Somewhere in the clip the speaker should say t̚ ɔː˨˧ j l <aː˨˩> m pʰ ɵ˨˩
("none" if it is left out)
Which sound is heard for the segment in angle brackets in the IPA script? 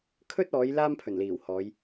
aː˥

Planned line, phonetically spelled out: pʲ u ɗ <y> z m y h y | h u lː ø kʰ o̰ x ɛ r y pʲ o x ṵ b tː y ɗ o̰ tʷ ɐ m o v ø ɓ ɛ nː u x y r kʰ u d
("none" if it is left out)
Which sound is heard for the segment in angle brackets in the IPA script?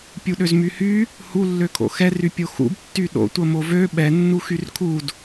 ø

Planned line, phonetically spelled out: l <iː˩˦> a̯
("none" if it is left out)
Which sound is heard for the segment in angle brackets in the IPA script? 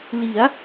i˩˦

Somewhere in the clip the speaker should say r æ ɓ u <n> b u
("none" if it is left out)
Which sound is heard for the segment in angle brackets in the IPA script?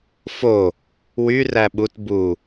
t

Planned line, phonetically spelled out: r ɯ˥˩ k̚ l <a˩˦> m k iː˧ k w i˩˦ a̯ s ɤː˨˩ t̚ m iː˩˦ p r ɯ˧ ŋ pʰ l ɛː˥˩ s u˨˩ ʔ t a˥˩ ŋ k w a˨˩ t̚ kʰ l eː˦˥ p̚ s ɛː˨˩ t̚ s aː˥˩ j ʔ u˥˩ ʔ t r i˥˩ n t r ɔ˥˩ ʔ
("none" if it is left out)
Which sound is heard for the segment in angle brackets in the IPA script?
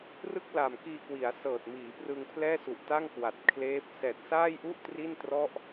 a˨˩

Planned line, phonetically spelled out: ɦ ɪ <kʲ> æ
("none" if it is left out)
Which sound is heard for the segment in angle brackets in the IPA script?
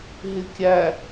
kʲ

